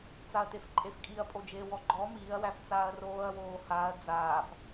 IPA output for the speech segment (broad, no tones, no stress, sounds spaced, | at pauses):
t͡s a ɐ̯ t̪ e f ǃʼ e f kʼ i ɐ̯ pʼ o d͡ʒ eː w ɔ ɡ͡ǃ ɔ m iː ɐ̯ w æ f t͡s aː ɐ̯ r oː ɐ̯ w oː h aː ɐ̯ d͡z aː f